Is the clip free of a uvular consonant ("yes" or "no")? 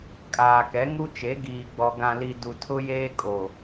yes